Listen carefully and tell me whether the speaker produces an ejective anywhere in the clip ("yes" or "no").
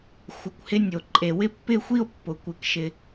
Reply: yes